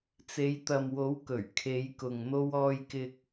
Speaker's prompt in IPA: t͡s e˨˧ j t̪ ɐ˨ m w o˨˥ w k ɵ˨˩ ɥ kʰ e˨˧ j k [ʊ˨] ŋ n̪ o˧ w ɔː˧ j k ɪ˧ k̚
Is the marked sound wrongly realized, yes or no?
no